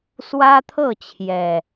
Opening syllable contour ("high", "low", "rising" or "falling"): high